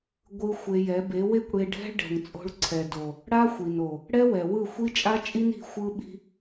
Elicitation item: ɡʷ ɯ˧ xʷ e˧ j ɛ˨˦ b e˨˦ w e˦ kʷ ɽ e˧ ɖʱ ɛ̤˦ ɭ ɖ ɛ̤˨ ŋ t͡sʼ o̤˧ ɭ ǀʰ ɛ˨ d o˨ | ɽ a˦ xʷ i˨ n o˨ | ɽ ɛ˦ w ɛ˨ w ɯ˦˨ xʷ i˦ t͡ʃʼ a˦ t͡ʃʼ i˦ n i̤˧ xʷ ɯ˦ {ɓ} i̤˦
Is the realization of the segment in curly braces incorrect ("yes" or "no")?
no